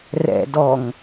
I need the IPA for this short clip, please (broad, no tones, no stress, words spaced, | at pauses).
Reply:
rɛ̰dɔŋ